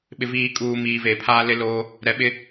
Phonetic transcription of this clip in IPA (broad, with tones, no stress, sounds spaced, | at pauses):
ɓ ɪ˨ v iː˨ kʼ uː˨ m iː˨ v eː˨ pʰ aː˦ l ɪ˦ l oː˦ | ɾ ɛ˨ ɓ ɪ˦